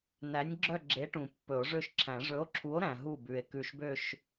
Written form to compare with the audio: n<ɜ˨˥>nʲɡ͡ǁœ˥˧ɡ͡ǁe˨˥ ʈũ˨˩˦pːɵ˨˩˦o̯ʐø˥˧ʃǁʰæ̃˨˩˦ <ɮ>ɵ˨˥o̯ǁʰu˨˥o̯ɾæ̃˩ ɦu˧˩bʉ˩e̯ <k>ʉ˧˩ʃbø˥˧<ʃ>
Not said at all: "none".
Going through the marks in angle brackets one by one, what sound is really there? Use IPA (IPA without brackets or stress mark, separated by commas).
æ˨˥, ʐ, k, ʃ